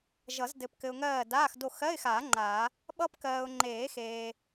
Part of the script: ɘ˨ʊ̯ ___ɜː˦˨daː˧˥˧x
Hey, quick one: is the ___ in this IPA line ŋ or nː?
ŋ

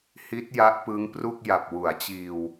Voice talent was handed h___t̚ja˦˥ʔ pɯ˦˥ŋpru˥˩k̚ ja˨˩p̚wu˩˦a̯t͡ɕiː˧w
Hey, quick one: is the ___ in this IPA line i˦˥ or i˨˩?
i˦˥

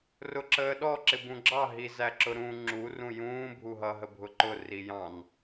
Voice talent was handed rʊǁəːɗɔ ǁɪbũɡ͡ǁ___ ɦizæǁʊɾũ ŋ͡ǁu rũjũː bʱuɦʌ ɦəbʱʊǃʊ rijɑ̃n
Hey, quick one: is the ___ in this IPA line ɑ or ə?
ɑ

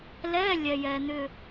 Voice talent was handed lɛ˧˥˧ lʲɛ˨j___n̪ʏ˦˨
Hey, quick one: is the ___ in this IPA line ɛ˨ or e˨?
ɛ˨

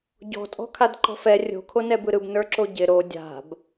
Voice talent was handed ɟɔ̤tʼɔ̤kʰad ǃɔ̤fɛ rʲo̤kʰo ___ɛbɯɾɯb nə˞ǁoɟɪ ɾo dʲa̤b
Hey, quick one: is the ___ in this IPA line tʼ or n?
n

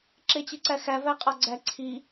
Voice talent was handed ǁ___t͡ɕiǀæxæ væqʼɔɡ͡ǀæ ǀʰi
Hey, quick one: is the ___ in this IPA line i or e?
e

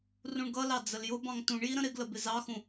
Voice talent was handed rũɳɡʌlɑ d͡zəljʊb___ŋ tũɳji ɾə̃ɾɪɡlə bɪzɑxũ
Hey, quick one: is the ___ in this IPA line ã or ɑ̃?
ɑ̃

